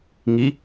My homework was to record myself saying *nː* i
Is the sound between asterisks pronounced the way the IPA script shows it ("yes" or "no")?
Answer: no